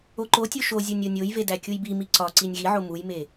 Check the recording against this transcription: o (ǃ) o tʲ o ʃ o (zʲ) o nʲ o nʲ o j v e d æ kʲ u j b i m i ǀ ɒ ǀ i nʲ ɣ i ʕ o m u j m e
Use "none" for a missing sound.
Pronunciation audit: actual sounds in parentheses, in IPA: ǃ, zʲ

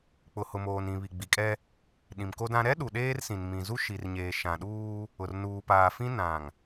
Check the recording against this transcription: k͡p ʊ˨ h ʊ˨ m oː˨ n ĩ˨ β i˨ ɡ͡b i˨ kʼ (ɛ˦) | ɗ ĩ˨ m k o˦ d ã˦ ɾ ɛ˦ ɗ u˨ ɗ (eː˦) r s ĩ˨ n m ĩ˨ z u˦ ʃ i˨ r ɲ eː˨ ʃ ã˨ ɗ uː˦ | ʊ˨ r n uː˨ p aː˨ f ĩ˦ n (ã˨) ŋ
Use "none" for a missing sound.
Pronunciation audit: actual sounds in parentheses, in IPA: ɛ˦, eː˦, ã˨

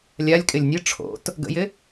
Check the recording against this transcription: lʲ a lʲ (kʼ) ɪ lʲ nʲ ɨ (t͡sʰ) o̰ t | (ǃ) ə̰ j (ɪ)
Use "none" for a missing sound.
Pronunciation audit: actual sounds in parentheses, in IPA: kʼ, ʈ͡ʂʰ, ɡ, ɪ

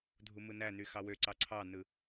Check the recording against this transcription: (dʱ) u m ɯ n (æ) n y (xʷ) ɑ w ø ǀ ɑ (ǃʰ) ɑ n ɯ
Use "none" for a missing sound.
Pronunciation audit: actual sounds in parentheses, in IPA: dʱ, æ, x, ǀʰ

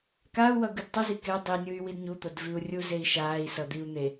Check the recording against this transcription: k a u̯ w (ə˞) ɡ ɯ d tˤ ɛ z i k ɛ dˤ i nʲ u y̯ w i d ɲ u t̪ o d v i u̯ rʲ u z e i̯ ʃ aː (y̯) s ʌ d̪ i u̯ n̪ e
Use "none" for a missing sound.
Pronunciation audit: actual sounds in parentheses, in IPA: ʌ, i̯

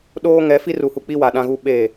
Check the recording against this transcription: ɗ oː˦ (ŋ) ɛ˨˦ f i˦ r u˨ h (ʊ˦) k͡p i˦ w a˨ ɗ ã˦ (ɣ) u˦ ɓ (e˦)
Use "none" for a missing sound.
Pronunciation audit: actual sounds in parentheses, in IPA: ŋ, u˦, ɣ, e˦˨

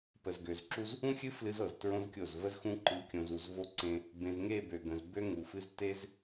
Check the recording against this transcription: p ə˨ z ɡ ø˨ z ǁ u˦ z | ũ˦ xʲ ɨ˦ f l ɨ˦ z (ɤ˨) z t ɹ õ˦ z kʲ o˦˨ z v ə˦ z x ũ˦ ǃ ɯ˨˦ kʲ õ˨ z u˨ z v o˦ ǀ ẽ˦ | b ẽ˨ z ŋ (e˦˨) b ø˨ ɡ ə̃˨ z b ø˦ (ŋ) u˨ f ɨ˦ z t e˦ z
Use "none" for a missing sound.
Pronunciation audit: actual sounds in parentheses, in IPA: ɤ˨, e˦˨, ŋ

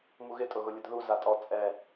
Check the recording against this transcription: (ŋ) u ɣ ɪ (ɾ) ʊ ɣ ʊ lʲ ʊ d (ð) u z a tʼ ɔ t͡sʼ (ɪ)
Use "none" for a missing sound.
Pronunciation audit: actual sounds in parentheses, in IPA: m, tʼ, ð, ɛ

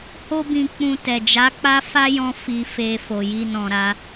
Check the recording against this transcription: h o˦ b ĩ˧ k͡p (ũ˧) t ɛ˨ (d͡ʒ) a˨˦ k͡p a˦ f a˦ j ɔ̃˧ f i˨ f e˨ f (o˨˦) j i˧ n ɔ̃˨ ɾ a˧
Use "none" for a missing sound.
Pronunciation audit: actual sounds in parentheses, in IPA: ũ˧, d͡ʒ, o˨

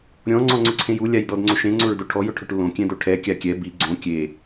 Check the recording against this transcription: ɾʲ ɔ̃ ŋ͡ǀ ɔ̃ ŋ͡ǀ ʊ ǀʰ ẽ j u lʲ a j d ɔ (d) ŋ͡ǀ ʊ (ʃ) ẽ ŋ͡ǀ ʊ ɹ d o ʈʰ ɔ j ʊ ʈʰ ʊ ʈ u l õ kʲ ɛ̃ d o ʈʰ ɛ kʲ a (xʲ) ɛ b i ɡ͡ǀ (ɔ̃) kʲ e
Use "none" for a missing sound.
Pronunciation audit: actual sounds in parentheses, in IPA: d, ʃ, kʲ, õ

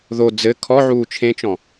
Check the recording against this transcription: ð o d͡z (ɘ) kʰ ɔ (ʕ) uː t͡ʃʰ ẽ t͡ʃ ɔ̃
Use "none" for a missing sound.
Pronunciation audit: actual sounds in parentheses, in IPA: ɘ, ʕ

